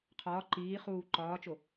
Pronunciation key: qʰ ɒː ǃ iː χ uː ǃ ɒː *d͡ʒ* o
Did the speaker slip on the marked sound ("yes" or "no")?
yes